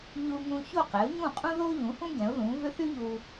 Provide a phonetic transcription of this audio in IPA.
ʎ u˧ ŋ ũ˧ ç o˥˩ q ɛ˩˥ ʊ̯ ɲ ũ˥˩ qʼ ũ˥ ð o˥ ʎ ũ˩˥ h ũ˥ ɡ ɛ̃˩˥ ʊ̯ ð ũ˩˥ v ʏ˥ θ y˥ ʎ u˧

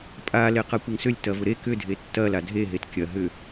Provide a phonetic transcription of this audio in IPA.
pʼ a l e q a kʷ ɐ ŋ s ʏ lʲ t ɐ v ʊ ɾ e k ʏ dʱ e tː ɐ l a dʱ e ɦ e t kʲ ɐ ɦ ʏ

